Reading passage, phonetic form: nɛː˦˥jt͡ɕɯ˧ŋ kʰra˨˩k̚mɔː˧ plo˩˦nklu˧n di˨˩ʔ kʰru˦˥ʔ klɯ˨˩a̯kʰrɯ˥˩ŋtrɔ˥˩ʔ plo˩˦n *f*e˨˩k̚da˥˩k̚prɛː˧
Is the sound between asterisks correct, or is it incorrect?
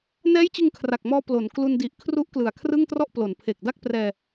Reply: incorrect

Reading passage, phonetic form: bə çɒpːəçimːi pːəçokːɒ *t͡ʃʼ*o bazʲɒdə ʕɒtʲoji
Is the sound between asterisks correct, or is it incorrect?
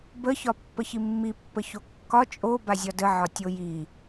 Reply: correct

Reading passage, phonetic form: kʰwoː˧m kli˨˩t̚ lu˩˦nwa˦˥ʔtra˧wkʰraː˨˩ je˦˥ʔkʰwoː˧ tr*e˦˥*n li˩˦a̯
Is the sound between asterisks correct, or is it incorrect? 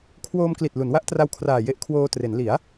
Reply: incorrect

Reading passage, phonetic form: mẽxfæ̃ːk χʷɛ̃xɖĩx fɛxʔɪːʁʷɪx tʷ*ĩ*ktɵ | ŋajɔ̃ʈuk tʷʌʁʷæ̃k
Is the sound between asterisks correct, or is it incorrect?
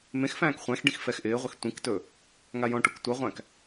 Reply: correct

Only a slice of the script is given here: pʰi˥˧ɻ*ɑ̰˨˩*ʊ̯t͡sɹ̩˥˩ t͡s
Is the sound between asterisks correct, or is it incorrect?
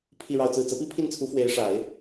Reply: incorrect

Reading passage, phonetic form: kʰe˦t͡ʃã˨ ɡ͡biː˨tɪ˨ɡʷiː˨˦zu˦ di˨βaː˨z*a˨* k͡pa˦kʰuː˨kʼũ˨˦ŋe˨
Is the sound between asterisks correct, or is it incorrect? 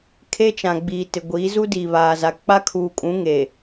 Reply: correct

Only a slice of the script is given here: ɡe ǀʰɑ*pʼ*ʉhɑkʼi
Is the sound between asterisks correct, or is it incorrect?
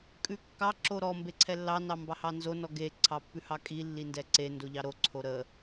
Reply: incorrect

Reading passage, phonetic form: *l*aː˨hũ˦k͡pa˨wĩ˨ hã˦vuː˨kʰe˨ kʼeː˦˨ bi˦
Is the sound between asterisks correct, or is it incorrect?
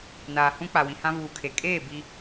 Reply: incorrect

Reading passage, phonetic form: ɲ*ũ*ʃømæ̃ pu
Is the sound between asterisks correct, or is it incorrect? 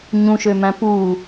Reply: correct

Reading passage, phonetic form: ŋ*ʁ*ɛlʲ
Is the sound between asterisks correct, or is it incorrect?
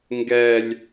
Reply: incorrect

